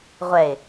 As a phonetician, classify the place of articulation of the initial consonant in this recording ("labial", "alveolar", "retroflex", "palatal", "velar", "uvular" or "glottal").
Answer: uvular